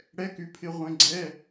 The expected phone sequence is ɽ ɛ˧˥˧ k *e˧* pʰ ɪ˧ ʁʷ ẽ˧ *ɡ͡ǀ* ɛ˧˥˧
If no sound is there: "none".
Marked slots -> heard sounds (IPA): y˧, ɡ͡ǀ

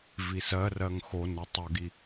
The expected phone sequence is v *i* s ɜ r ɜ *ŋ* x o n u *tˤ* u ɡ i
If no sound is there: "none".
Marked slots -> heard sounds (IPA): i, ŋ, tˤ

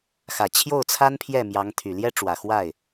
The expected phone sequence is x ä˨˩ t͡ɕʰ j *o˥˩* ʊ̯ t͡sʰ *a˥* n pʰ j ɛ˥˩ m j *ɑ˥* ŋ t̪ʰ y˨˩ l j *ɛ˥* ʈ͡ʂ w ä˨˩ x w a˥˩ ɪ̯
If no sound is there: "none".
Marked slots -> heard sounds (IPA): o˥˩, a˥, ɑ˧˥, ɛ˥

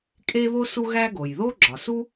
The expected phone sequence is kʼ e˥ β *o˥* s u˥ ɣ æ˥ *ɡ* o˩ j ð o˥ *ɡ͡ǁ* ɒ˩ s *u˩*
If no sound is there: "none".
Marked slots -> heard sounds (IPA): o˥, ɡ, ɡ͡ǁ, u˥

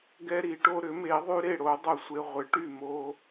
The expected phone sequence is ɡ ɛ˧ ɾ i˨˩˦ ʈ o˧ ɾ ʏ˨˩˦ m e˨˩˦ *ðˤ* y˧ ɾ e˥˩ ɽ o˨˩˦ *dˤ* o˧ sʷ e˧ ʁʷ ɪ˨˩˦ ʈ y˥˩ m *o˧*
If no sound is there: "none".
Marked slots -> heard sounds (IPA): ðˤ, dˤ, o˧

